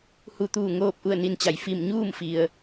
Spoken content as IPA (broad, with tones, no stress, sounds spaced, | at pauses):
h u˧˩ t̪ uː˧˩ ŋ oː˥˨ p̚ ʔ u˥˨ ə̯ n i˧ n t͡ɕ a˩˧ j f i˧˩ m ɲ uː˥˨ m f i˩ ə̯